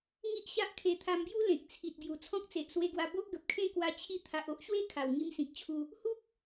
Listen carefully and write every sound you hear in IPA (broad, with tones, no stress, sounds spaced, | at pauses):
ŋ i˦ ʔ ɕ a˦ ʔ kʰ e˧ t̪ʰ a˧ m b j u˦ l ẽ˨ k̚ t͡sʰ i˨ t̚ ɡ j u˨˩ t͡sʰ ɔ̃˦ k̚ t͡s e˨ ʔ s w e˧ ɡ w a˧ b o˦ ʔ ɡ ə˨ p̚ kʰ ẽ˥˧ k w a˧ t͡ɕʰ i˧ t̪ʰ a˨ ʔ o˦ ʔ ɕ w e˦ kʰ a˨˩ w ŋ i˧ m s ĩ˨ k̚ t͡ɕʰ u˧ | h u˦ k̚